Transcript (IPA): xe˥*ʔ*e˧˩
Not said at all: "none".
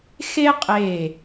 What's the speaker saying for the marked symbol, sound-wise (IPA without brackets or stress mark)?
qʼ